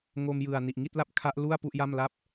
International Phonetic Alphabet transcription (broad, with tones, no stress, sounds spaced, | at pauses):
ŋ o˧ m j ɯ˨˩ a̯ n i˨˩ ʔ ŋ i˥˩ t̚ l a˥˩ p̚ kʰ a˦˥ ʔ l u˥˩ a̯ p u˥˩ ʔ j a˥˩ m l a˥˩ p̚